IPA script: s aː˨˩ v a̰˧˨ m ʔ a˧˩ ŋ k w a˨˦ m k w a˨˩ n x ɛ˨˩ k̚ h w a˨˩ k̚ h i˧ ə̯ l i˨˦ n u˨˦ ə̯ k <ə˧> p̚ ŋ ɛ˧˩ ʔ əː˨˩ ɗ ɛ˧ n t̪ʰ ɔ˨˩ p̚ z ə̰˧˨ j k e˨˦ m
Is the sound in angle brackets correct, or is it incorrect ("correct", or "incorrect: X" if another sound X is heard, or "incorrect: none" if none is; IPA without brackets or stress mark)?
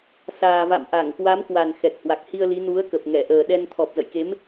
incorrect: ə˨˩